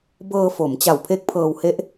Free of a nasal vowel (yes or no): yes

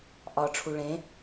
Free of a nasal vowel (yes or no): no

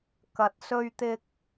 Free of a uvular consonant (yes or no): yes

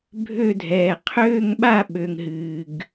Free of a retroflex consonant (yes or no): yes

